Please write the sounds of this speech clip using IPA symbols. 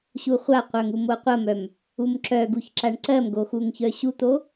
ɕ u χʷ a qʷ œ ŋ u m o qʷ ɐ m œ m | u m ǁ œ ɡ u ç ǁ a ɳ ǀ ɜ m ɡ o x u ŋ ç œ ɕ u t̪ o

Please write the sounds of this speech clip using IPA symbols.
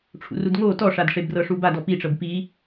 ʈ͡ʂʰ ṵ r u d ŋ o t ɔ ʂ a d ʂ e b r ɤ ʂ u b a d ɔ p i ʈ͡ʂ ɤ b p i

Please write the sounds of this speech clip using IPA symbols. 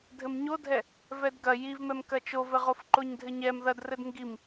dʱ ɘ m ɲ o dʱ ɛ | v ɛ d ɡ ɐ j i v m ɛ m k ɐ t͡ʃ o v ɘ ʁ o f ǃ o ɲ dʱ ɘ ɲ ɛ m ð ɐ d r ɘ d ŋ ɡ i m

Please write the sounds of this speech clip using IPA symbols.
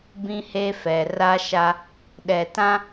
b ĩ˦ h e˦ f ɛ˨ r a˦ ʃ a˦ | ɗ ɛ˨ t ã˦

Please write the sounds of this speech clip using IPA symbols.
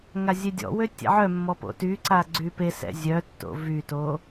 ŋ a zʲ e dʲ ɔ̰ w ø tʲ ɛ̰ ʕ œ mː ɔ p o̰ t y ǀ a ɡ͡ǀ y p e s ɛ̰ zʲ œ tː o̰ v y t o

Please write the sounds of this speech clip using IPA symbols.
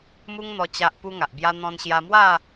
m u˦ ŋ n̪ ɔ˧ t͡ɕ a˦ ʔ p u˦ ŋ a˨ ʔ b j a˦ n̪ ɔ̃˧ n ɕ j a˧ m w a˥˧

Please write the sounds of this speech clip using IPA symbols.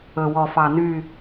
ɵ˨ w ɔ˨ f ɑ˨ n y˦˨

